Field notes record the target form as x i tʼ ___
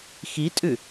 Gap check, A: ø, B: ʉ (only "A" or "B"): B